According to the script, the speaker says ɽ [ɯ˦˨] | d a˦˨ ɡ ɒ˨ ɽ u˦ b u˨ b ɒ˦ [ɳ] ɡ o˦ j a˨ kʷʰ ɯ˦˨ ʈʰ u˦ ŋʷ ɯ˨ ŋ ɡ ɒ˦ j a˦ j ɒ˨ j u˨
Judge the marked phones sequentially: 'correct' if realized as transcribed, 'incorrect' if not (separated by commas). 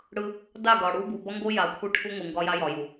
incorrect, incorrect